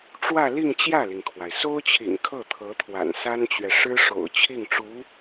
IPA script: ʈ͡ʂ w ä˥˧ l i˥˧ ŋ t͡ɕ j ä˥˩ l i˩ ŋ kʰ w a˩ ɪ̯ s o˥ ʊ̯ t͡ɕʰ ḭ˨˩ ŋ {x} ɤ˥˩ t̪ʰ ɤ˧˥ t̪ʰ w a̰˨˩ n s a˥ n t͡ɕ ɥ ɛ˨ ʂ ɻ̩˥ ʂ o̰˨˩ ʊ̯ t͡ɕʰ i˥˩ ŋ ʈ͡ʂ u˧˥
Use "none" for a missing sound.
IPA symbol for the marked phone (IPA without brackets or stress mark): kʰ